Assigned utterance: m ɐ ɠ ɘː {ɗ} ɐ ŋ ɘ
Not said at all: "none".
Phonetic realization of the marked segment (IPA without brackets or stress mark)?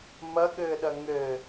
ɗ